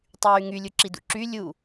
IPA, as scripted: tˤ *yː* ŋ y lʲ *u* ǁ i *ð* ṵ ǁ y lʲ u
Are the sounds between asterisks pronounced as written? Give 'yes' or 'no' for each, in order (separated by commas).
yes, yes, no